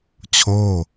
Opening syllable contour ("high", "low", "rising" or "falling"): falling